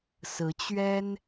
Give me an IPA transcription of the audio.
sɹ̩˧˥t͡ɕɥɛ˥n

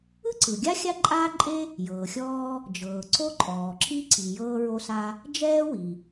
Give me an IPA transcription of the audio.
ɯ˥ǀɯ˩ɡʲa˥ xʲa˥ǃʼaː˥ǃʼe˥ | jɤː˩xʲɔː˥ | d͡ʒɤː˩ǀo˥ǃʼɔː˩ǁi˥ ǀi˩ jɤː˥ɹo˥sa˥ | d͡ʒɛː˥wi˩

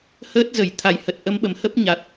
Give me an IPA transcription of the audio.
həː˦˥t̚zə˧˩j t̪ʰa˨˩jhə˨˩t̚ʔə˨˦mɓə˨˩m hə˦˥p̚ɲa˨˩t̚

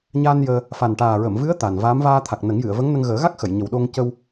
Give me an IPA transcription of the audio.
ɲa˧n jəː˧ | fa˨˩nʈaː˨˩ɹə˨˩˨mvɨ˧˥ə̯ t̪a˨˩nvaː˧˥m vaː˧t̪ʰa˨˩k̚ nə˨˩˦ŋjɨ˨˩˨ə̯və˧˥ŋnə˧ŋ ɣəː˨˩˦ɣa˦˥k̚xə˨˩˨j ɲə˨˩wɗo˧ŋ cə˧w

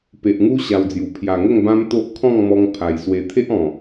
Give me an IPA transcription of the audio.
pe˨ʔŋu˦ ɕa˧wd͡zju˨˩ pʰja˨˩ŋə˥˧ŋ bã˦mt̪o˦ʔ kʰɔ̃˥˧ŋmɔ˧ŋ pʰa˨˩jswe˧ t̪ʰe˦ʔɔ̃˨˩

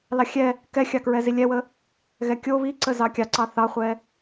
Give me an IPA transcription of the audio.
lɑxʲɛ | kɛxʲɑkɹɛzi lʲɛwə | ɣɛkʲo βiǀə zɑkʲɑǀɑ θɑχʷɛ

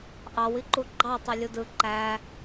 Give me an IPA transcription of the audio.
ʔɑwiǃu ɡ͡ǃɑ tˤelʲudɯ ǃæ

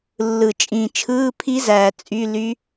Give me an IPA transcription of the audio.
lːɯ˨˩t͡ʃʼĩ˨˩t͡ʃʰɯː˧˥˧pʰi˦˥ zæː˨˩t͡sʼy˧˥˧ly˦˥

